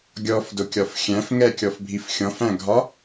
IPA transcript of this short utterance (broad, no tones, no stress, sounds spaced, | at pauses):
ɡʲ ɔ f d ʊ kʲ ɒ f xʲ æ̃ f ŋ ɛ kʲ ɔ f bʱ i f xʲ ɔ̃ f æ̃ ɡʱ ɒ